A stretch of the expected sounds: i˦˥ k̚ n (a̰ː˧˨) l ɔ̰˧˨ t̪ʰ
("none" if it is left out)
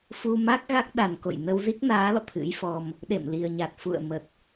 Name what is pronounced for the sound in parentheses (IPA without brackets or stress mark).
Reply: aː˨˦